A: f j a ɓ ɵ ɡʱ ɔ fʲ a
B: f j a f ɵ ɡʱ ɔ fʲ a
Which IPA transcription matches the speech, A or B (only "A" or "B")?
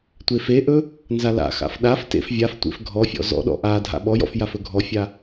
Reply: B